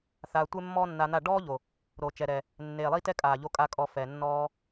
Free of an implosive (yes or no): yes